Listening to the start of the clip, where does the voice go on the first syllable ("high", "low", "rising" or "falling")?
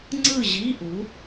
falling